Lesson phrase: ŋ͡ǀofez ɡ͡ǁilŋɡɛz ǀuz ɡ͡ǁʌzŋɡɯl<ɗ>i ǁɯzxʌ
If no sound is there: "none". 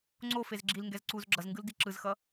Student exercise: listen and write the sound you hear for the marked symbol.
d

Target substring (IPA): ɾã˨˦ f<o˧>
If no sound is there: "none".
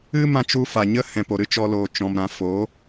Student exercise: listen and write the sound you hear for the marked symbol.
o˨˦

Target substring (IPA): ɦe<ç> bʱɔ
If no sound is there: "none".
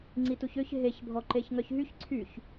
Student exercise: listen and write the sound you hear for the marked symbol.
ç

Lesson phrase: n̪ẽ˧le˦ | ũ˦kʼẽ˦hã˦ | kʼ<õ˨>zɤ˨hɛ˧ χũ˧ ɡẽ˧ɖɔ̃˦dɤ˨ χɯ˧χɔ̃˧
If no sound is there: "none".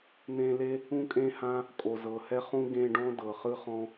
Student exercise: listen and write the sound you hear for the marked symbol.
o˨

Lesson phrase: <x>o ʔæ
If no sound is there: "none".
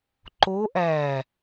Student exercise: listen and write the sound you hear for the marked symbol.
ǃ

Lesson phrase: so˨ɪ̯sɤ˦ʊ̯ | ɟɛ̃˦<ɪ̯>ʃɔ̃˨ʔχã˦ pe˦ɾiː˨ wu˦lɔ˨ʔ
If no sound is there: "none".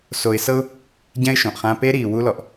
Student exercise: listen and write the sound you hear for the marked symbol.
ɪ̯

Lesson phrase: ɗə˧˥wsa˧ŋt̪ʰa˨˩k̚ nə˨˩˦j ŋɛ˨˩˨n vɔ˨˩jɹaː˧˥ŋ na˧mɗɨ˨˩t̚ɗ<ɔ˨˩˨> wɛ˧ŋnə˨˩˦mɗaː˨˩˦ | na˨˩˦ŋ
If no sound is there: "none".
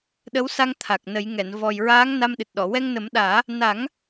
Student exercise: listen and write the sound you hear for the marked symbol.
ɔ˨˩˨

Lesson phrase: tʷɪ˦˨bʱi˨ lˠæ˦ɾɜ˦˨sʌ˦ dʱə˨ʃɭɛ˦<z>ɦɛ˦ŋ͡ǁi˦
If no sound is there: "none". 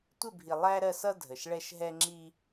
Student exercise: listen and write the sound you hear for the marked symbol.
ʃ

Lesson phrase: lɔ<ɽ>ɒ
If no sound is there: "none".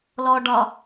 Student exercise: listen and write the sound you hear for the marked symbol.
ɖ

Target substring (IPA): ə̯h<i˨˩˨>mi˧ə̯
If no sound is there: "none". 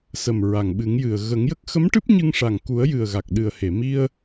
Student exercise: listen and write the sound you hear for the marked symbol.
e˨˩˨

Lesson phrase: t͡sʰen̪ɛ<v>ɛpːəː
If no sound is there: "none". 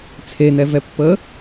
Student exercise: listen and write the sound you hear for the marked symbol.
v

